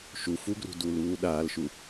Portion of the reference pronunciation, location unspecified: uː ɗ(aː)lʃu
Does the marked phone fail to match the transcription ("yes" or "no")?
no